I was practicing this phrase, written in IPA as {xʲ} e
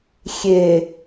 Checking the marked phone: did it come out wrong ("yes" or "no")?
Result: no